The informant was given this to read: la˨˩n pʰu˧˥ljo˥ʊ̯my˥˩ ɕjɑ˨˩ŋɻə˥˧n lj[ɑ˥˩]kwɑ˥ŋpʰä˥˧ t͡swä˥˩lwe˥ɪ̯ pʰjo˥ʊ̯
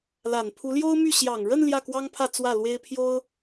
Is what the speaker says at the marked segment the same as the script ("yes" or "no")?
no